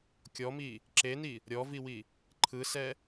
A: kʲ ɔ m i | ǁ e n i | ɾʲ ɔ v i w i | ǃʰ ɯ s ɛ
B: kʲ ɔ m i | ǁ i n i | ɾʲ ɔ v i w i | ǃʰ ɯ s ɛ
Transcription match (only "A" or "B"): A